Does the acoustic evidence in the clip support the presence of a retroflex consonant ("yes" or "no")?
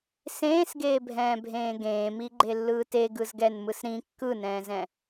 no